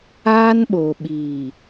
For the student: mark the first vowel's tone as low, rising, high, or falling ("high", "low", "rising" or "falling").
high